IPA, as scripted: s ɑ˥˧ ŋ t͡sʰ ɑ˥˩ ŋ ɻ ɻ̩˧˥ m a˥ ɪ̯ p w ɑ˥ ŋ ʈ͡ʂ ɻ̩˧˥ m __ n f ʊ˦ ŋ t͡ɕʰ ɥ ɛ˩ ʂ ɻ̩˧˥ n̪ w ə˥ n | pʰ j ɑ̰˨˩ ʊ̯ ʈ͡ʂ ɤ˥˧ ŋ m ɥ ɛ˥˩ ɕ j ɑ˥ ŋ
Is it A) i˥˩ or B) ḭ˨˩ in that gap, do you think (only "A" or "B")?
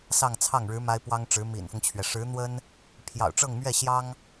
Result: B